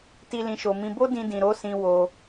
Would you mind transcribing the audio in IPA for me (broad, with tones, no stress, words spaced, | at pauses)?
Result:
ti˧lĩ˨ʃo˨mĩ˧ bo˦dĩ˧dĩ˨ ɾo˨˦sĩ˧ wo˧